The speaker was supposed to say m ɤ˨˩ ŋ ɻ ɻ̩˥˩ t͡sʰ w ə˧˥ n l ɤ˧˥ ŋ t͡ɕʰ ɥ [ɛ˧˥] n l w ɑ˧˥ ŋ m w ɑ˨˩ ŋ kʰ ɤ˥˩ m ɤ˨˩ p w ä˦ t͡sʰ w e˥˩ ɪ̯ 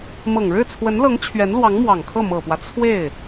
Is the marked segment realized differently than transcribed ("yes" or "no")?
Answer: no